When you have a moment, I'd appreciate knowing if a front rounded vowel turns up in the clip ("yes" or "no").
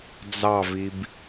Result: no